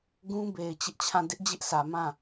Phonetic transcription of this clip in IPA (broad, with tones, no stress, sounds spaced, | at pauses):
ɡ ũ˦ b e˨ ɪ̯ t͡ɕ ɪ˦ ʔ t͡ɕʰ ã˦˨ d ɪ˦ ʔ d͡ʑ ɪ˦ ʔ s ä˨ m ã˦˨